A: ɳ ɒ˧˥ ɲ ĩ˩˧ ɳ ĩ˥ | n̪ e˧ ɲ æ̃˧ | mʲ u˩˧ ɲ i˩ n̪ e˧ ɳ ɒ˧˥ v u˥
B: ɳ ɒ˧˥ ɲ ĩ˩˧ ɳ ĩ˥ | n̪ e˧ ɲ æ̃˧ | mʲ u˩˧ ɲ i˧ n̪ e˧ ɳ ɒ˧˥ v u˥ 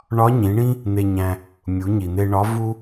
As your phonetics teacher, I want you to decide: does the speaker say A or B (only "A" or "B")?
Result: A